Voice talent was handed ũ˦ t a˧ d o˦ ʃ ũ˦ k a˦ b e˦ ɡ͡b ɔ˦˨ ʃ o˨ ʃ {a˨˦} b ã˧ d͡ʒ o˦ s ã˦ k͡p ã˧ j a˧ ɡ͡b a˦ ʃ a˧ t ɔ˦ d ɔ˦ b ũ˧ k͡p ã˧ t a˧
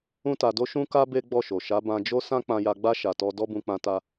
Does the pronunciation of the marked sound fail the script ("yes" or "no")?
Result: no